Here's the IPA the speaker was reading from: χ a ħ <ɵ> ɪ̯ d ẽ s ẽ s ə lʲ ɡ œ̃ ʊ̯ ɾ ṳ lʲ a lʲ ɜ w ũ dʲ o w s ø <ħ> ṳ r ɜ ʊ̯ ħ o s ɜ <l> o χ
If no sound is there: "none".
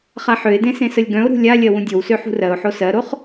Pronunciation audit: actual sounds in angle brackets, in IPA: ø, ħ, ɾ

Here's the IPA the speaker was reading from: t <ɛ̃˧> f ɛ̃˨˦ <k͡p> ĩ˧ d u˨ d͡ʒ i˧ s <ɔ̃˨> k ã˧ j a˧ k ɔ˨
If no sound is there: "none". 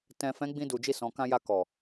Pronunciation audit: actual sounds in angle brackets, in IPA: ɛ̃˨, ɡ͡b, ɔ̃˨

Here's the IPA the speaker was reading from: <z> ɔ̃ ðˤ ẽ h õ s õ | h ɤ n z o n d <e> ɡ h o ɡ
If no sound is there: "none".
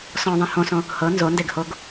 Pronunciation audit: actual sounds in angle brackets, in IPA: s, e

